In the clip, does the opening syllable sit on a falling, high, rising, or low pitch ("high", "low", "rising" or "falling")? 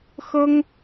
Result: high